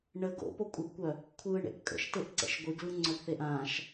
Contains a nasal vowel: yes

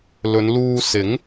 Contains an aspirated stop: no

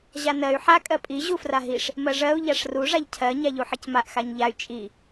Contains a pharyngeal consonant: yes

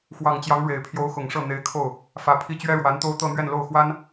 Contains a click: no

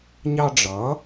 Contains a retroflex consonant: yes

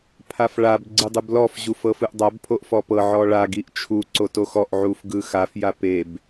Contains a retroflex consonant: yes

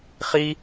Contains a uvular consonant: yes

